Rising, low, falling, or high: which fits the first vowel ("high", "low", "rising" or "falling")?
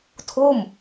falling